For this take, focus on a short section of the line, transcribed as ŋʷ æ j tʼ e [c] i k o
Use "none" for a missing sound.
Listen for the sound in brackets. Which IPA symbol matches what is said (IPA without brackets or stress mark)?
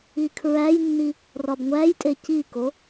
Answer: c